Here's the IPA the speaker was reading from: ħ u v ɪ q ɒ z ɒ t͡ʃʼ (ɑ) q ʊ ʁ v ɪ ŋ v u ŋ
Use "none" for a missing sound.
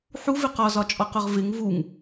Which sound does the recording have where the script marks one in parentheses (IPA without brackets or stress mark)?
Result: ɒ